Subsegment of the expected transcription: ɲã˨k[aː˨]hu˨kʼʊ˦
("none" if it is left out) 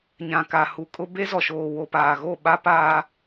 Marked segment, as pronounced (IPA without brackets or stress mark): a˨